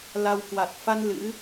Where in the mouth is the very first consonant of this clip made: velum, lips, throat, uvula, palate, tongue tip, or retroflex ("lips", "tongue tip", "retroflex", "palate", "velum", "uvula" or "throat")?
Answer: tongue tip